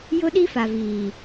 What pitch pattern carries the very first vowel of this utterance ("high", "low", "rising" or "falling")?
high